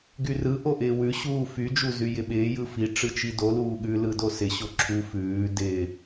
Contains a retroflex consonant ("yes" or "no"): yes